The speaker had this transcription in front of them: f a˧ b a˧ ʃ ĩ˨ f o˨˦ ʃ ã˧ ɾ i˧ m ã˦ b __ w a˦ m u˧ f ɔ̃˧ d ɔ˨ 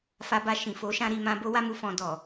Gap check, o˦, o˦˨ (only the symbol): o˦